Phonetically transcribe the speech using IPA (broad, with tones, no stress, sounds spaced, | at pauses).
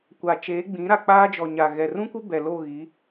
kʷ a˨ t͡ʃ eː˨˦ ɡ͡b ĩ˨˦ ɾ a˨ k͡p aː˦ d͡ʒ ɔ˨ ɲ a˨ ɣ ɛ˨ r ũ˦ kʷ ɪ˦ b ɛ˨ l o˦˨ ɣ i˨˦